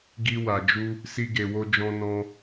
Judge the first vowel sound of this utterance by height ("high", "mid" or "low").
high